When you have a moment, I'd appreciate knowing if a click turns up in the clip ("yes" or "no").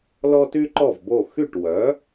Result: yes